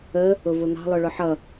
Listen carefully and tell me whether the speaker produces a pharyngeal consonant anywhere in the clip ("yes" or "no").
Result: yes